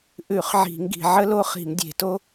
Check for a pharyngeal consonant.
present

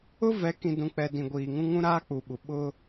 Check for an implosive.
present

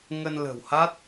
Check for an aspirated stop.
absent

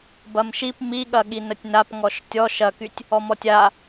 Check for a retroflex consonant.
absent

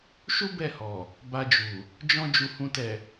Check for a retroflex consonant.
absent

